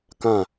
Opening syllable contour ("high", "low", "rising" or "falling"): falling